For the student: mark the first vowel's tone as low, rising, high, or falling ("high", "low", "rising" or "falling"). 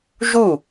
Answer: falling